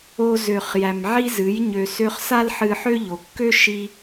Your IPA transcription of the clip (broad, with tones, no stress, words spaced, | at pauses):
o˧zø˨χ jæ˨mʕi˦zɨ˨˦j ɲø˨sø˧χ sa˦lħɨ˧ħø˦ʎo˨ kːø˦ ʃi˦